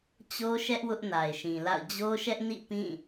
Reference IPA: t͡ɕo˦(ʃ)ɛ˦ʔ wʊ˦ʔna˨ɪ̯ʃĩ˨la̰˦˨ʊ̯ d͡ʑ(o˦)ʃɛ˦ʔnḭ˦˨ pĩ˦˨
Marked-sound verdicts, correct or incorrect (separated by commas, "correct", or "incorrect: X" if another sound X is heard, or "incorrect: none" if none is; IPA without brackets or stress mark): correct, correct